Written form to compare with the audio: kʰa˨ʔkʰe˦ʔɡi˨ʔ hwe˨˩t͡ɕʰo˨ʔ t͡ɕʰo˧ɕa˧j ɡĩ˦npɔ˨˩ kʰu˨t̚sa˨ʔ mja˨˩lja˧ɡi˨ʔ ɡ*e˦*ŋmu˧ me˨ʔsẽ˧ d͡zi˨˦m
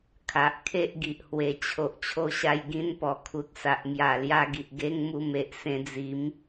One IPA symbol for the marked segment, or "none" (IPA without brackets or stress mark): e˦